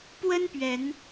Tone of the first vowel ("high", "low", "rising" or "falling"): high